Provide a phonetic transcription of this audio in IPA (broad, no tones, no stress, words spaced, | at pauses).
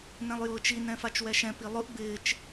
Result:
nɛ̃lˠjʊːt͡ʃi nɛ̃fat͡ʃwɛʃɛ̃ pilˠʊʔ bɪːt͡ʃ